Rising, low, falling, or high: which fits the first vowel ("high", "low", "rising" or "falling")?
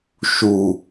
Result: low